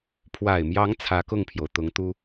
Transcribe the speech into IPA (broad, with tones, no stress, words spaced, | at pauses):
pʰwa˨˩ɪ̯mjɑ˧˥ŋ t͡sʰä˧˥kʊ˥˩ŋpʰjo˩ʊ̯ t̪ʊ˧˥ŋt̪u˥